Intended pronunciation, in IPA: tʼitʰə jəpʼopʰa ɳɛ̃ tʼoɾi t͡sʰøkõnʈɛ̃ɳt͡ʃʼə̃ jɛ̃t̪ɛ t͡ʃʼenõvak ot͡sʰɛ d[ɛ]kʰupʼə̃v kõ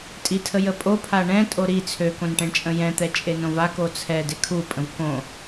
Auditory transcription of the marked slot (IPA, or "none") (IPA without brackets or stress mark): e